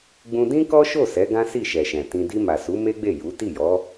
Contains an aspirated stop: no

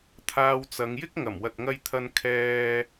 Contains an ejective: no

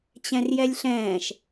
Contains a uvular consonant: no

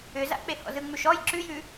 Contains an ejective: no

